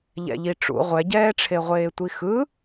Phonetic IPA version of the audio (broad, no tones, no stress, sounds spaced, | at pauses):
ʎ ɛ̰ ʎ i ʈ͡ʂ ṵ ʁʷ ɛ ɟ ɛː ʈ͡ʂʰ e ʁʷ eː tʷ i x ɯ